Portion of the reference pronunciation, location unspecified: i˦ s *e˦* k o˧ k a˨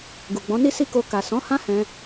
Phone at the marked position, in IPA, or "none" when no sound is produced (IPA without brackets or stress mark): i˦